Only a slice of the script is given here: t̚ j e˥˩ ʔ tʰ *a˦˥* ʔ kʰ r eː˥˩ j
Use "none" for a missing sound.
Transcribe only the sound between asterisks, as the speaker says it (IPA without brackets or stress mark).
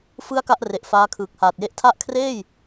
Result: a˦˥